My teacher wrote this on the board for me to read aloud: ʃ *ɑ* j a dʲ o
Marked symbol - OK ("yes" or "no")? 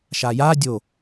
no